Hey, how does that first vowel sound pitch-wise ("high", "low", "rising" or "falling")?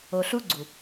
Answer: low